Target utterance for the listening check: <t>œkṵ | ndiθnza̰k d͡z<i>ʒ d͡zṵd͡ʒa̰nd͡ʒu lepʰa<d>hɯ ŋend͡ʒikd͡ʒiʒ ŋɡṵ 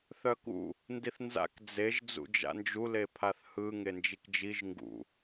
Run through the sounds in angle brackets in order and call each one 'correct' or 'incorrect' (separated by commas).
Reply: incorrect, incorrect, incorrect